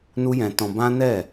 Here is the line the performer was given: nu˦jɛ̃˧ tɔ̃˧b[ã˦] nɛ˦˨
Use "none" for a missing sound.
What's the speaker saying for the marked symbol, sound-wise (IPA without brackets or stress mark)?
ã˦